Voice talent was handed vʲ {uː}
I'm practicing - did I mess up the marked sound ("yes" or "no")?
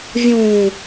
yes